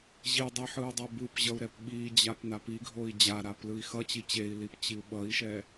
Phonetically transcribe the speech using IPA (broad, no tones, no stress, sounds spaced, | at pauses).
ʑ i dˤ i ħ ɯ u̯ dˤ o b ɯ p ʑ ʌ u̯ ɾ ɛ p ɓ i d͡ʑ a p n a p i ɡʱ o i̯ d͡ʑ a ɾ a p l ɯ i̯ x ʌ t͡ɕ i t͡ɕ e i̯ l i p t͡ɕ i u̯ ɓ ʌ i̯ ʃ ɛ